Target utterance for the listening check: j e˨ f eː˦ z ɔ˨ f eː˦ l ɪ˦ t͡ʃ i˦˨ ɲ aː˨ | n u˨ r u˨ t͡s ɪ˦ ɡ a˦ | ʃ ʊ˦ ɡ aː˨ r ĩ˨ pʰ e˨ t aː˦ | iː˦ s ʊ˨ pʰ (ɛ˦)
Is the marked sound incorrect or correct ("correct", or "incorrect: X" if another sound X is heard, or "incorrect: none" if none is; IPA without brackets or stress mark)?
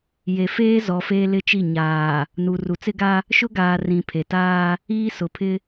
incorrect: ɪ˦